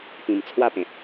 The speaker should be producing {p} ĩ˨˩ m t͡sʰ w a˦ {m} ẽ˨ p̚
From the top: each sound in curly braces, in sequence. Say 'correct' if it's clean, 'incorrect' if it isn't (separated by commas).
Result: correct, incorrect